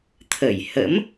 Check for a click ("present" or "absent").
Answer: absent